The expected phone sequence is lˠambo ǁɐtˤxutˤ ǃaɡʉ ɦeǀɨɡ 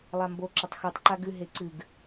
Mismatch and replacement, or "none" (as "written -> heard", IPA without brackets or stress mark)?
none